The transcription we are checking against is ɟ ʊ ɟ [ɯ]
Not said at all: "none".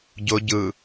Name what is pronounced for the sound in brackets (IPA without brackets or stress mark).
ɯ